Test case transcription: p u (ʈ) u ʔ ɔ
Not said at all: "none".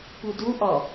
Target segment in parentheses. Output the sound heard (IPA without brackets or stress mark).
d